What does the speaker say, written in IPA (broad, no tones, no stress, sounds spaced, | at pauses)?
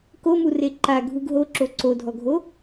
k o m u r e ǃ a ɡʱ u ɡ ɦ o ǁ o ǀ o dʱ ɔ ɡʱ o